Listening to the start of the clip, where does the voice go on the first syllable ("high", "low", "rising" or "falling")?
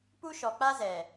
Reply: high